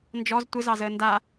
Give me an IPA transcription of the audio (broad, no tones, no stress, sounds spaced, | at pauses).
n d͡ʒ ɔ z tʷ ɪ z ɑ z əː n d a